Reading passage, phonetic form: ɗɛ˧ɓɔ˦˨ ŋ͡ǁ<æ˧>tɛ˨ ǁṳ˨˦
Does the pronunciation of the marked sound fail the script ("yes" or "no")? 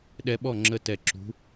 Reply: yes